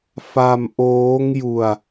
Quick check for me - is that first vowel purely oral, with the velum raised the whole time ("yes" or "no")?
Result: yes